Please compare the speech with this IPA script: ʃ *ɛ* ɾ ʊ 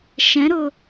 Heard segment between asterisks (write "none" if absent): ɛ̃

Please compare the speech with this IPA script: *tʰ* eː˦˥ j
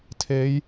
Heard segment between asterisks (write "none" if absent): tʰ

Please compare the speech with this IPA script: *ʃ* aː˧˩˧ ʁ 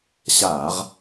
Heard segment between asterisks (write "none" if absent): ɕ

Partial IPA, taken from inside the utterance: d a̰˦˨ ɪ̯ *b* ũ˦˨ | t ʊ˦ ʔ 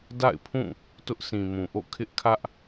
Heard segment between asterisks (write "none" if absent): pʰ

